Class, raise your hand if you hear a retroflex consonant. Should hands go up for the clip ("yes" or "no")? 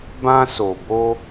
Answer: no